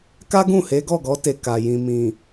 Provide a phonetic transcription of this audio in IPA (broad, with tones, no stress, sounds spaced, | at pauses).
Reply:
k a˦ ɡ ũ˦˨ h e˨˦ ɡ ɔ˦˨ ɡ ɔ˨˦ t e˧ k a˨ j ĩ˨ m ĩ˨